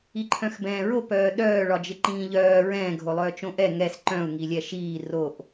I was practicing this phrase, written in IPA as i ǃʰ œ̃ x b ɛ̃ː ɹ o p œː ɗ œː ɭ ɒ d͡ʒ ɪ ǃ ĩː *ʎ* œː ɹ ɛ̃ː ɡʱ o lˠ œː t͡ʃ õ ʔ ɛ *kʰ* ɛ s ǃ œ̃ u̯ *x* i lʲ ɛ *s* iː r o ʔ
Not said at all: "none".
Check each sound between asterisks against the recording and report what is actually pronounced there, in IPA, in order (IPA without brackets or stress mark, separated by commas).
ʎ, ŋ, ŋ, ʃ